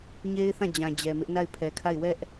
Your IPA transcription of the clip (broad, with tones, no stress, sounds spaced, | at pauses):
ɲ e˦ ɪ̯ θ ã˦˨ d͡ʑ ã˨ d͡ʑ ɛ˨ m ɪ˦ ʔ n a˦˨ ɪ̯ pʰ ɛ˨ kʰ a˦˨ ɪ̯ w ɛ˦ ʔ